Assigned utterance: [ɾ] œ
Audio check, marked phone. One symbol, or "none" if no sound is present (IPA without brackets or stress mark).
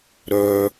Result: ɾ